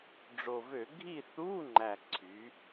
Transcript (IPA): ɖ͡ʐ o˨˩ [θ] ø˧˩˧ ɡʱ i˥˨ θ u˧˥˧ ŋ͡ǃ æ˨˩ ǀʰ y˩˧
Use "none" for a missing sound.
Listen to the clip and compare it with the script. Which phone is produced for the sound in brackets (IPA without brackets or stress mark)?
v